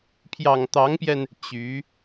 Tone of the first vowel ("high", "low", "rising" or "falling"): low